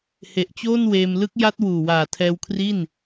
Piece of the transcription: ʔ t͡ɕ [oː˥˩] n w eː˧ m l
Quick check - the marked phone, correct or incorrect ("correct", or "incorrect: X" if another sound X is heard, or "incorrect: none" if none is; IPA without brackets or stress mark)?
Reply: correct